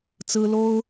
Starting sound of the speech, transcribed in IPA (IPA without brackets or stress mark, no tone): t͡s